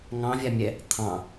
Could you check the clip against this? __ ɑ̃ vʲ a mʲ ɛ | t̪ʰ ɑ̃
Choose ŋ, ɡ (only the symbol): ŋ